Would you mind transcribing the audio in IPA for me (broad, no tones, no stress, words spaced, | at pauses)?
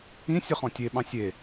ĩ sʲəχɔ̃tʲe ɓɑ̃sʲe